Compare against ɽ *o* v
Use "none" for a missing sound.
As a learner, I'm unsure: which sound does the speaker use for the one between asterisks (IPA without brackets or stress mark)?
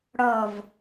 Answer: ɔ